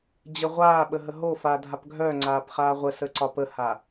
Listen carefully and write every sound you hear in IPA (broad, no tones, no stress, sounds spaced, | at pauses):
d͡ʑ ə ʁʷ aː ɓ ə ɦ ə ɦ o f aː dʱ a p ɡʱ œ ŋ͡ǀ aː p χ aː ʁʷ ə s ə ǀ ɒ p ə h a